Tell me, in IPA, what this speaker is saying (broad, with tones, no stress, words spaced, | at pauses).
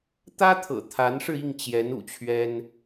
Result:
t̪ä˥t̪ʰɤ̰˨˩ t̪ʰa˧˥nʂɻ̩˧i˥˩ŋ t͡ɕjɛ˧˥nṵ˨˩t͡ɕʰɥɛ˥n